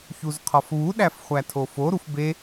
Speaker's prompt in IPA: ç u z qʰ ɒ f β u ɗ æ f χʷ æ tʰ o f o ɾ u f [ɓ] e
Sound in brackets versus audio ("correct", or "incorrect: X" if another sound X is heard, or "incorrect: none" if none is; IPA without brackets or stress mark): incorrect: b